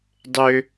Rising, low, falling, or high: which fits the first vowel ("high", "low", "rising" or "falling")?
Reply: low